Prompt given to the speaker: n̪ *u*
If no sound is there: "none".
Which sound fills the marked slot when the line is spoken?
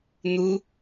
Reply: u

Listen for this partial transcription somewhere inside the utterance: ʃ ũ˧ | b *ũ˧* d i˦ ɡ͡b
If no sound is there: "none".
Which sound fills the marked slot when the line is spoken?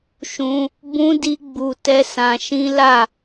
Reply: ũ˦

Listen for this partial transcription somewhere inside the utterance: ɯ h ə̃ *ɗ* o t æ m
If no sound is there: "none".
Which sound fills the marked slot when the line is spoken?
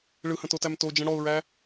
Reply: t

